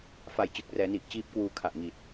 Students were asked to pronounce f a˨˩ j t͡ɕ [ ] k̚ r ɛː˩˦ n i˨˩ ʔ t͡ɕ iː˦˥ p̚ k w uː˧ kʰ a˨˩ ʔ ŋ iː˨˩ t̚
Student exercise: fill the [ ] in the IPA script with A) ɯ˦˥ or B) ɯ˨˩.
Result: B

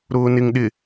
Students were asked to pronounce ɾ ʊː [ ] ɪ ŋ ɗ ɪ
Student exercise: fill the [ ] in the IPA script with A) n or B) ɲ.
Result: A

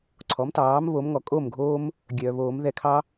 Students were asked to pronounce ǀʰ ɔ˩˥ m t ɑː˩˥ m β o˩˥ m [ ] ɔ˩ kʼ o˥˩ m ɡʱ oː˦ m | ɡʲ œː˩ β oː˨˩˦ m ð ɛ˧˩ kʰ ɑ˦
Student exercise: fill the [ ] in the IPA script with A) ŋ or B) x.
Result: A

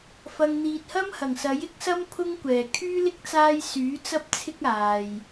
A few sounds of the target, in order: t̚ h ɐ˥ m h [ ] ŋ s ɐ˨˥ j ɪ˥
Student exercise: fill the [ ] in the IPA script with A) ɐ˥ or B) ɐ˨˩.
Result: B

